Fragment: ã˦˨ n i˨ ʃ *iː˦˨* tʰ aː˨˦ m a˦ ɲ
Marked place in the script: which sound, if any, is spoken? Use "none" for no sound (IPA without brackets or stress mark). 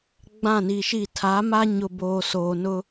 i˦˨